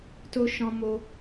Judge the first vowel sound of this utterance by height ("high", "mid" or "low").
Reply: mid